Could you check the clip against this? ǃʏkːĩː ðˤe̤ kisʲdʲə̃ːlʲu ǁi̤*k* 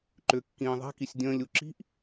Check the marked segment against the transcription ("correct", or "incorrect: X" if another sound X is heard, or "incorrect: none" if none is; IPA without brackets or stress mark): incorrect: ʔ